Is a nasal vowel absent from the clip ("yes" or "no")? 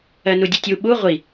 yes